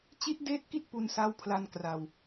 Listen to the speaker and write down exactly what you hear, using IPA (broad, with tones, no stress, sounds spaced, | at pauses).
t͡ɕ i˦˥ t̚ d eː˦˥ t̚ k i˦˥ t̚ p u˧ n s a˦˥ w pʰ l a˧ n k r a˧ w